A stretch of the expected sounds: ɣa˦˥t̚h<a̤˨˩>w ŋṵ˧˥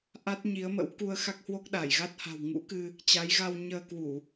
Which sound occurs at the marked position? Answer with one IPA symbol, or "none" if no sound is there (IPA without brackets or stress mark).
a̤˨˩